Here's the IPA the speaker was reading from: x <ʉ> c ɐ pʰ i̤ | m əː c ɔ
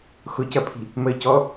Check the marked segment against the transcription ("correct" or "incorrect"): incorrect